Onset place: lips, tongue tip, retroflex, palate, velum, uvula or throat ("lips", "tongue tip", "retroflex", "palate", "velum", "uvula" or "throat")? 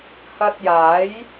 throat